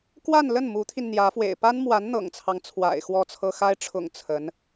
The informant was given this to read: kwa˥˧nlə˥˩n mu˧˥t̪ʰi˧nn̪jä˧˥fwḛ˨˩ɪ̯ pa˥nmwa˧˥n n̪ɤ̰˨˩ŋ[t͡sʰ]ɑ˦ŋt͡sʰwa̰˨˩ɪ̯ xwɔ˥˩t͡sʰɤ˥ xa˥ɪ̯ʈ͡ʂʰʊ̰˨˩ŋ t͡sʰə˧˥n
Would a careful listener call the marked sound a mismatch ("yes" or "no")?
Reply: no